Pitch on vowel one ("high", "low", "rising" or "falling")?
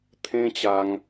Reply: high